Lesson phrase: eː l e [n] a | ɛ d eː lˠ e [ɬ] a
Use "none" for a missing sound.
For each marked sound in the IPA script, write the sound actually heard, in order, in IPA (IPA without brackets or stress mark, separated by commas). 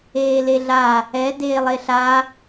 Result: ɮ, ɬ